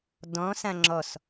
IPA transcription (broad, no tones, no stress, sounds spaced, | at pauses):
d ɔ̃ s ã ŋ͡ǁ ɔ s